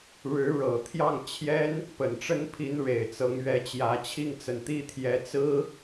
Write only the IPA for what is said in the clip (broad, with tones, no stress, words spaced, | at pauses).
ɻɻ̩˧˥ ɻɤ˨˩ t̪ʰjɑ˥˩ŋt͡ɕʰjɛ˥n | pə˨˩nʈ͡ʂə˥npʰi˧˥nɻe˨˩ɪ̯ t͡sɤ˧˥ŋɥɛ˧˥t͡ɕjä˧˥ t͡ɕʰi˥˩ŋt͡sə˨˩nt̪i˥t̪ʰjɛ˧˥ t͡sɹ̩˥